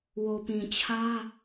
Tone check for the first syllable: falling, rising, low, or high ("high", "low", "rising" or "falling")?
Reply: low